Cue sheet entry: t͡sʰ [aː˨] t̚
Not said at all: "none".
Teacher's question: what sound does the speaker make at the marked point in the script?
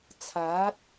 aː˨˥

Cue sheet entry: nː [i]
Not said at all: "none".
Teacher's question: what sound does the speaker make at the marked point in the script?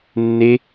e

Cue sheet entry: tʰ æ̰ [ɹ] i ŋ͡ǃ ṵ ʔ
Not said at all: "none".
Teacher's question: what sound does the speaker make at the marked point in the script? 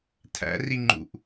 r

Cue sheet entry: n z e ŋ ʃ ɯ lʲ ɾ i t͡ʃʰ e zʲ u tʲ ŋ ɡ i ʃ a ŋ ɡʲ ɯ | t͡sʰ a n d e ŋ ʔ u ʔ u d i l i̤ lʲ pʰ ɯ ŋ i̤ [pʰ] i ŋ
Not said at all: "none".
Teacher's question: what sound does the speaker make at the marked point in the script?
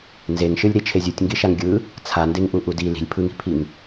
pʰ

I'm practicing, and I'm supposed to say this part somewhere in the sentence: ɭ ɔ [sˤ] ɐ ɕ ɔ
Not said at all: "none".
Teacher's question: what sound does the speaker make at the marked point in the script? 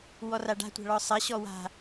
sˤ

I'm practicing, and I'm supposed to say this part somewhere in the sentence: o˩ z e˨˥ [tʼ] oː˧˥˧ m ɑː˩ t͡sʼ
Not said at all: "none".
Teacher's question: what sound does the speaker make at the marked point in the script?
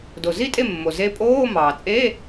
pʼ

